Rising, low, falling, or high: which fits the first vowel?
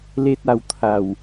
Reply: high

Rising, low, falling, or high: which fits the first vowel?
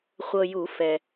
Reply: low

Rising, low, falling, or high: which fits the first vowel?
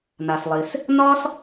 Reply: low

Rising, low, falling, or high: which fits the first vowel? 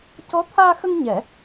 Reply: rising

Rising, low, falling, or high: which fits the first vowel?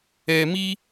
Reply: low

